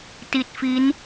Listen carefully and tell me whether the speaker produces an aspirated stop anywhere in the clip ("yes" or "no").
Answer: no